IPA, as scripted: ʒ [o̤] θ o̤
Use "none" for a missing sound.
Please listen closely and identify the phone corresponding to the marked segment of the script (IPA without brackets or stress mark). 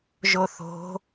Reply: o